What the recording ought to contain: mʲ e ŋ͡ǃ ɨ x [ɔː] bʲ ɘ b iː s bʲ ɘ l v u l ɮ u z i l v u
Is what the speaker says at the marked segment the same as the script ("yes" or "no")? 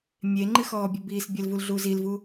yes